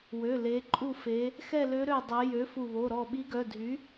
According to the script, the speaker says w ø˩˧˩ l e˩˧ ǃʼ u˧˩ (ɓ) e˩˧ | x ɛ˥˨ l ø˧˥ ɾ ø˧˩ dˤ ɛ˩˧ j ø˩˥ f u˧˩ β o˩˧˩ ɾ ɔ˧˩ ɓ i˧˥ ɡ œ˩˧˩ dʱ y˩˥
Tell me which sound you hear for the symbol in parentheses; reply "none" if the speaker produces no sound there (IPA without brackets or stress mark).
f